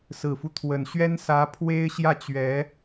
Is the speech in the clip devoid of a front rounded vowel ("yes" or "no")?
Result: yes